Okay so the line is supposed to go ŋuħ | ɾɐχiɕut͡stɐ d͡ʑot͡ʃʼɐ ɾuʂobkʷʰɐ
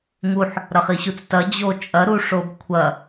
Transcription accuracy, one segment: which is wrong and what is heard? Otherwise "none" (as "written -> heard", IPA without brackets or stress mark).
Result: none